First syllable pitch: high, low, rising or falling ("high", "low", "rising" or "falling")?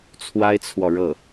high